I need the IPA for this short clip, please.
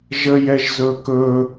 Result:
ʒ ə j ɛ ʒ z ɵ k ɵ

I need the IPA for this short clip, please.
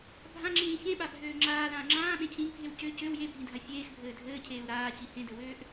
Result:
bʱ ã ŋ͡ǁ ĩː ç ẽ ɓ a bʱ øː ŋ͡ǁ aː l ãː ŋ͡ǁ ãː ɓ ẽ cʰ ĩ ɡ bʱ e w c ø c ø w j e bʱ ĩ dʱ a fʲ eː x bʱ ɘː dʱ ɘː cʰ eː u̯ ɾ aː c i h ẽ d ɘ w øː ʔ

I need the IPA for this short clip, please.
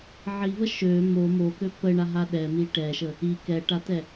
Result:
ʕ i v ə ʃ ø m o m o k ø p ə ɳ a ɦ a ɗ ɛ m i ʈ ɛ ʃ ə | i k ɛ ʈ a t ɛ

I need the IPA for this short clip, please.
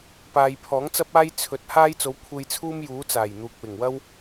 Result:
p aː˨ j pʰ ɔː˨˥ ŋ t͡s ɐ˥ p̚ aː˥ j t͡sʰ ɵ˨˥ t̚ h aː˥ j t͡s o˨˧ w kʷʰ e˧ j t͡sʰ uː˥ m j uː˨˥ t͡s aː˨˩ j n̪ uː˨ k̚ w ɪ˨˩ ŋ w ɐ˥ w

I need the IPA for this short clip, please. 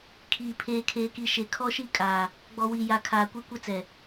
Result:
kʰ iː˨ pʰ eː˨ kʰ eː˨ k i˨ ʃ e˨ kʰ ɔ˦ ʃ i˦ kʼ aː˨ | ɡ͡b ɔ˨ w i˨ j a˨ kʰ aː˨ kʷ ɛ˦ kʷ ɛ˦ t͡s ɛ˨

